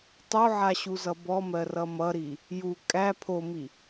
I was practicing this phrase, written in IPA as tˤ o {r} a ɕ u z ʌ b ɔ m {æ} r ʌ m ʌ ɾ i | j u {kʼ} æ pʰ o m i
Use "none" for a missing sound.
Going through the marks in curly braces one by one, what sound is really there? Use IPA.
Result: ʕ, ɜ, kʼ

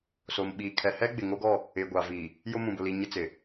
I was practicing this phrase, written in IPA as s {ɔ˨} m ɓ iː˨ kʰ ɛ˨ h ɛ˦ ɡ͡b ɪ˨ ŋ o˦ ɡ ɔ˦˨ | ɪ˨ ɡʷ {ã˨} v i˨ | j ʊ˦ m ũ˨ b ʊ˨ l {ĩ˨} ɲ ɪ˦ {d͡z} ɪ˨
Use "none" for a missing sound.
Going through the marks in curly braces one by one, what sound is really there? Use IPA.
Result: o˨, a˨, i˨, t͡s

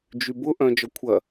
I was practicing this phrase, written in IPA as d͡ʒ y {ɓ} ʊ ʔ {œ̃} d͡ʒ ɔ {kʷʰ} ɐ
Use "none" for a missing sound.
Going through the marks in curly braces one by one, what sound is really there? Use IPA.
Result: b, œ̃, kʷʰ

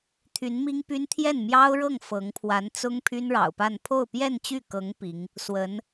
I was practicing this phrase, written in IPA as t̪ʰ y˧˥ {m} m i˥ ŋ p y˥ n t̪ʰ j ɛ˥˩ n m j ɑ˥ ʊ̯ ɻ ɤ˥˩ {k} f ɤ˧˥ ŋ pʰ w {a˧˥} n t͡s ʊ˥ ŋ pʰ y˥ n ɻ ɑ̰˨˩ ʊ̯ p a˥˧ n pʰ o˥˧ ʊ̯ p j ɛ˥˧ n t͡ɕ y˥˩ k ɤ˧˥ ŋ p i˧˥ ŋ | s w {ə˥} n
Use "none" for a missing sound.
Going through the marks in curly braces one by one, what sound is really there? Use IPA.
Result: n, ŋ, a˧˥, ə˧˥

